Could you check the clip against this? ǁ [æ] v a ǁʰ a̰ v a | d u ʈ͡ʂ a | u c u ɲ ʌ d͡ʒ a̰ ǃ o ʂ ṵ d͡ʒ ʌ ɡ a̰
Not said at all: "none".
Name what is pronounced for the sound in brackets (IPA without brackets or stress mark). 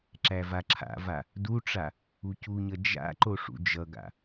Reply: æ